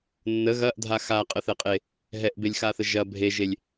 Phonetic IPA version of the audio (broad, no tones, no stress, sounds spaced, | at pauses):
nː ə ɣ ɐ ʔ dʱ a x a qʼ ə θ ɛ qʼ e | ɦ ɛ ʔ b e lʲ x a θ ə ʒ ɐ bʱ e ʒ e lʲ